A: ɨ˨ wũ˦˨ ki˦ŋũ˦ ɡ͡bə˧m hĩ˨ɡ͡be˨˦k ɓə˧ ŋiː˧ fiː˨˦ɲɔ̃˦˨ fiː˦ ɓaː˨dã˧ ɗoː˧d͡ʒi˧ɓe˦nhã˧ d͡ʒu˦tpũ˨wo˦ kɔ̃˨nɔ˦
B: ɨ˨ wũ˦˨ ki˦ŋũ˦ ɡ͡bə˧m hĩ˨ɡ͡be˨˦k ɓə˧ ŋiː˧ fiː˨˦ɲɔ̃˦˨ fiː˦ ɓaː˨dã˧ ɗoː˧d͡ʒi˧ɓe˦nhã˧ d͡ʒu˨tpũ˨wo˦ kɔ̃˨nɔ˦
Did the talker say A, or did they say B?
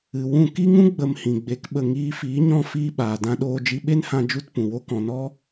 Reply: A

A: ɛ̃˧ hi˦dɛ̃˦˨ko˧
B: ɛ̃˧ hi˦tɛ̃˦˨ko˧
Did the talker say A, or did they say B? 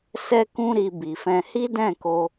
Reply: A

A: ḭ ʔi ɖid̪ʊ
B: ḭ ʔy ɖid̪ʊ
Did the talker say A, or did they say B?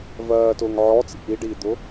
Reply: A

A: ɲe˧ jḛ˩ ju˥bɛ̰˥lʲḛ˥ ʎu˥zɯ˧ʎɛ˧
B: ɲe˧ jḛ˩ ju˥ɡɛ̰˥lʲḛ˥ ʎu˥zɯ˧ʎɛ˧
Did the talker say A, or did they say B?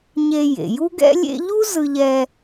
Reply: B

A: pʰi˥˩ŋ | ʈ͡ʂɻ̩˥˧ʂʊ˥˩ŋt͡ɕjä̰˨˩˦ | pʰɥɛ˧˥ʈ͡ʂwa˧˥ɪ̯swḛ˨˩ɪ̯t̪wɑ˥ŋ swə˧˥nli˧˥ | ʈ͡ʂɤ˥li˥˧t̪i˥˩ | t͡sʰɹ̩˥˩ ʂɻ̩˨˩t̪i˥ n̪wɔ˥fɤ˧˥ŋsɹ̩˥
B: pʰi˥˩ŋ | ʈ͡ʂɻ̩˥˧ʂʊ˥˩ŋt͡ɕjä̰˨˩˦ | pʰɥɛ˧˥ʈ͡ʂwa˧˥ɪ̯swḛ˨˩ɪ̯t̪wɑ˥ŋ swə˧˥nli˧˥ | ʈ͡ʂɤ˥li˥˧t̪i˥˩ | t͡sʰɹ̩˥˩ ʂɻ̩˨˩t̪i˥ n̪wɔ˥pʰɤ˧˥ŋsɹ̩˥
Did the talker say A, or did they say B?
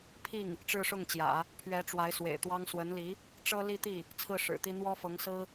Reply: A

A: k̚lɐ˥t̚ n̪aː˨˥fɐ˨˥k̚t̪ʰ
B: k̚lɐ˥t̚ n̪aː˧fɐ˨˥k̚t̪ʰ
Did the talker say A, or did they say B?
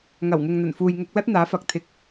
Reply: A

